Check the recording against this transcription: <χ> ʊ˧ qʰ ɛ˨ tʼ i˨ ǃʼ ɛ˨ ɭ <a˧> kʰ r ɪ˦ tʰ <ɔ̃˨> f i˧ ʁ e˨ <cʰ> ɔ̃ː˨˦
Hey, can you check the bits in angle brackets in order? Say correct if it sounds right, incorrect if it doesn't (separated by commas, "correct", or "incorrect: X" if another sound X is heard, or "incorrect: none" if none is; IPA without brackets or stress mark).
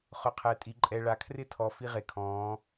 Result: correct, incorrect: a˨, incorrect: ɔ˨, incorrect: kʰ